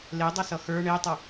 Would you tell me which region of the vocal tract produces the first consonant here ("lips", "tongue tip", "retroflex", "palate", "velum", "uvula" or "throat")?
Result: tongue tip